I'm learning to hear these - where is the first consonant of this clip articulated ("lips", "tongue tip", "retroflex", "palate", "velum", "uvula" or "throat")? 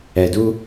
tongue tip